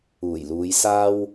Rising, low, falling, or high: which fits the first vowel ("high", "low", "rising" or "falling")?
low